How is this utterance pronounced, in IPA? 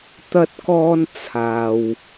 t̪ ɐ˥ t̚ k ɔː˥ n t͡sʰ aː˧ w

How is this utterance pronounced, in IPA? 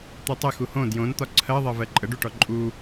t̪ u tˤ ə x u h õ d j õ n t̪ ɒ ǀʰ ɜ ðˤ ɜ v ɜ ǃʼ ə ɖ u ʈ ɔ ǃʼ u

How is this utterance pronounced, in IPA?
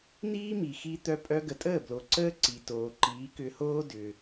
n̪ iː˥ m i˩ x i˧ t̪ œ˧ pʼ œ˧ ɡ ə˩ tʼ əː˥˩ b l o˩ ǀ əː˥ ǀ i˩ t oː˩ ǃ iː˩˥ k ʏ˧ h oː˥ d ʏ˩

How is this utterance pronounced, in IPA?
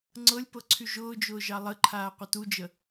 ŋ͡ǀ ɤ lʲ p ɤ ǀʰ y ʒ ʊː d͡ʒ ʊː ʒ ɑ lˠ ə ǃʰ aː qʷ ə t u d͡ʒ ə

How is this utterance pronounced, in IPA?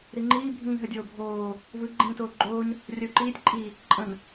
ɾ i ŋ͡ǃ iː bʱ ĩː ɦ ə dʲ oː bʱ oː | v ɯ ɡ͡ǃ ĩː t oː ɡ͡ǃ oː ɲ | rʲ ə u̯ ǃ iː tʲ ǃʼ i | ǃʼ ə̃ n

